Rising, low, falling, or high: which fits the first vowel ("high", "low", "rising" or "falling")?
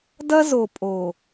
high